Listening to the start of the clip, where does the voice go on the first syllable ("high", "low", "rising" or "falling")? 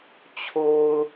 low